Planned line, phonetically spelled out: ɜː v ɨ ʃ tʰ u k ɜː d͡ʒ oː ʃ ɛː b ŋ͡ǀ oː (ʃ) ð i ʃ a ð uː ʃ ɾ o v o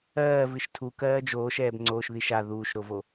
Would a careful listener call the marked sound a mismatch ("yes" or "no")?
no